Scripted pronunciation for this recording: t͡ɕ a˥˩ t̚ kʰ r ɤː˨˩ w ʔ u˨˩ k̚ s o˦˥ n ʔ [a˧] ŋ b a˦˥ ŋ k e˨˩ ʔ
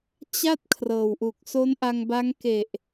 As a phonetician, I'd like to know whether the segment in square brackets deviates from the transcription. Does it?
no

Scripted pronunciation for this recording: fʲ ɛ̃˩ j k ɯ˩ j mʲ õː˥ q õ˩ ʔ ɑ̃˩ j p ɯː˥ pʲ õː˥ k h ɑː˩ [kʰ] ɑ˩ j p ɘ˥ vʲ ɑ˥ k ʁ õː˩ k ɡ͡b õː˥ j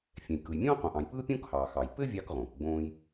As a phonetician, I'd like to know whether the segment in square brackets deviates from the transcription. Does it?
yes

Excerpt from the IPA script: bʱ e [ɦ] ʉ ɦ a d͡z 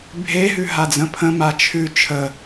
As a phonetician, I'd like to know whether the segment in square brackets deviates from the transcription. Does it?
no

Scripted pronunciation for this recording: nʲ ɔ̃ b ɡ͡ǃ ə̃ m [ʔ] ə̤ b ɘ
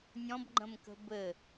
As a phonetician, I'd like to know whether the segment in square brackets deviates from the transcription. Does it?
yes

